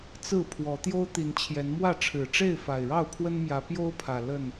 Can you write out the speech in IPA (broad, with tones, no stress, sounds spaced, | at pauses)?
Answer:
t͡s ɹ̩˥˨ pʰ w ɔ˨˦ t̪ j o˦ ʊ̯ t̪ i˨˦ n t͡ɕʰ j ɛ˨˦ n m w ä˥˨ ʈ͡ʂʰ ɻ̩˨˩ ʈ͡ʂ e˥˨ ɪ̯ f a˨˩ ɪ̯ ɻ ɑ˥˨ ʊ̯ pʰ w ə˦ n m j ä˨˦ p j o˦ ʊ̯ pʰ ä˨˩ l ə˥˨ n